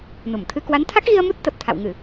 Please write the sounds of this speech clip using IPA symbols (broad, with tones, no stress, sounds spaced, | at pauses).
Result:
n u˧˩ m t̪ʰ ɨ˧ k w a˨˦ n t̪ʰ a˦˥ k̚ ɣ i˧ ə̯ m u˦˥ t̚ t̪ ə˨˩ p̚ t̪ʰ a̰˧˨ w ŋ ɨ˧˩˨